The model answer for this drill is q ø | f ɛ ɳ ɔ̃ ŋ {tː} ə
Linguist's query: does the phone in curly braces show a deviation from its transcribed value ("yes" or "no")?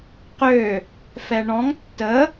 no